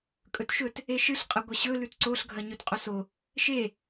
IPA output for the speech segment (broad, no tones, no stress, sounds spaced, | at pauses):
kʼ ɵ t ʃ ɵ t | e ʃ ɨ ɬ qʼ ɐ ɡʷ ɐ ɕ ɵ l ʉ t ǀ o ɬ ɡʱ ɐ ɲ ɵ t qʼ o s o | ʃ e